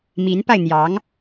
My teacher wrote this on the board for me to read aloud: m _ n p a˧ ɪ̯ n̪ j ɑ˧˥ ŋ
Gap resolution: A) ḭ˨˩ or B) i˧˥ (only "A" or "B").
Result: B